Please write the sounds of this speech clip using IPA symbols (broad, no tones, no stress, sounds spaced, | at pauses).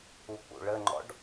u k͡p ṵ ɭ ə ŋ͡ǃ ɔ̰ ɖ